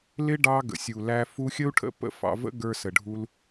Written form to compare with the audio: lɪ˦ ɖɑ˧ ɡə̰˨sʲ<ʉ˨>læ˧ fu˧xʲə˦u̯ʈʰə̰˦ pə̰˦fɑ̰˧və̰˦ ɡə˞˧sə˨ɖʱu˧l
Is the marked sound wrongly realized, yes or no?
yes